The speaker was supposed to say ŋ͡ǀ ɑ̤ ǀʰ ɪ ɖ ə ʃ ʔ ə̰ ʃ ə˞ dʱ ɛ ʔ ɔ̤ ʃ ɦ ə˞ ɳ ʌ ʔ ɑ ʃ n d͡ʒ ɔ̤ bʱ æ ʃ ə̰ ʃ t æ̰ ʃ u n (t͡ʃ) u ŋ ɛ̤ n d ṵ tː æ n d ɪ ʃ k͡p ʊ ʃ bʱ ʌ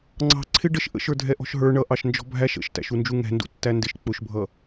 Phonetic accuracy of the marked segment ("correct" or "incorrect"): incorrect